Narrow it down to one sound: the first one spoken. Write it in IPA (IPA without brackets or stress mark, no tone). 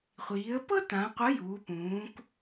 χʷ